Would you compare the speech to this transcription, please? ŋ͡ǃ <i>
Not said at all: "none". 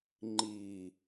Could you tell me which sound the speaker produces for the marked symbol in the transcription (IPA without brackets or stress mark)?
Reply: i